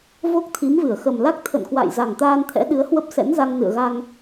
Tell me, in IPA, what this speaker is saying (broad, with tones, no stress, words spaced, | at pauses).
vo˦˥k̚t̪ʰi˨˦mvɨ˧˩ə̯ xə˨˩mla˦˥k̚ t̪ʰə̰˧˨nkwa̰˧˨j za˨˩ŋt̪aː˧nt̪ʰɛ̰˧˥ ɗɨ˨˦ə̯hwə˦˥p̚sɛ̰˧˥nza˧ŋ nɨ̰˧˨ə̯ɣa˧ŋ